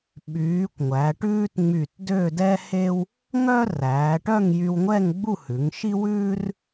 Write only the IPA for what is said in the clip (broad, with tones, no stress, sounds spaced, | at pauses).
ɓ yː˩˧ kʷ ŋʷ æ˩˧ ʈ ʉː˥ t ŋ͡m y˧˩ t d ø˥˧ d ɛ˥ h e˥ w | ŋ œ˥ r æː˩˧ ʈ œ˥˧ ŋ j y˧ w ŋʷ ɛ˥˧ ŋ ɡ͡b u˥˧ h ʉ˩˧ ŋ ʃ i˥ w ʉː˥ r